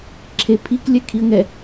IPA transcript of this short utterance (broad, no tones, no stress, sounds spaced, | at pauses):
ǁʰ e pʰ i k lʲ ɛ kʰ i ə̯ ŋ ɛ